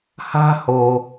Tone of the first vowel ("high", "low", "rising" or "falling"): high